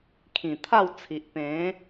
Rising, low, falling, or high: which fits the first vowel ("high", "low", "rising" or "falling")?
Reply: low